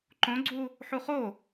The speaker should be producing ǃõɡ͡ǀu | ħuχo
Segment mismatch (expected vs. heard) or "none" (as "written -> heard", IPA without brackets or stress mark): none